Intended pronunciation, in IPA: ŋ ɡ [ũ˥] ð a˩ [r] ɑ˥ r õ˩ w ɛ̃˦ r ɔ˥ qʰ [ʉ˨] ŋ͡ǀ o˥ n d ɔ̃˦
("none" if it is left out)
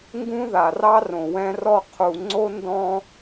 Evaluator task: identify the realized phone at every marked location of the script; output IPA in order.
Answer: ũ˥, r, u˨

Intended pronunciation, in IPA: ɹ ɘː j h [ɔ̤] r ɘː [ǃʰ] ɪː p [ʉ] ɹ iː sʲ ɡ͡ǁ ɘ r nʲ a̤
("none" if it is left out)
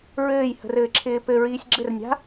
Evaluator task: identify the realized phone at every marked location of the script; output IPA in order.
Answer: ə̤, ǁʰ, ɘ

